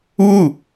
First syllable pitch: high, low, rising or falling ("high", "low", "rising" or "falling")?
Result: falling